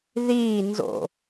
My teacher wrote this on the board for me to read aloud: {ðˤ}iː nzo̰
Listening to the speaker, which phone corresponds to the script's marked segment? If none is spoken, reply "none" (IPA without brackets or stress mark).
ð